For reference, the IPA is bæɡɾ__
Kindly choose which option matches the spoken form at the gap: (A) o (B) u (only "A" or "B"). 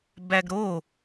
A